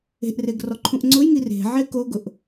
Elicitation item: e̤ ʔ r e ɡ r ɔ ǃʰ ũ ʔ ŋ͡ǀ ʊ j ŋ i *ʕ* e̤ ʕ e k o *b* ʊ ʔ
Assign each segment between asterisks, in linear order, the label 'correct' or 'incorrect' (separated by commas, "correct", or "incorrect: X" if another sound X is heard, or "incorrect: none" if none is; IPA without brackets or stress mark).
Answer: incorrect: r, incorrect: ɡ